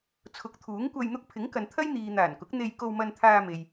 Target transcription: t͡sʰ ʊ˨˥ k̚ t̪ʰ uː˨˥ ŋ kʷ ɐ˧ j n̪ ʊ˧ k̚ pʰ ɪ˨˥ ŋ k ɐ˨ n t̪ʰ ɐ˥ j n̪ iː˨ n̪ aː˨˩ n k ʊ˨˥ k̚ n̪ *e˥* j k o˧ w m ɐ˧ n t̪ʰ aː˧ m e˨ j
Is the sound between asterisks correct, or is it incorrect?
incorrect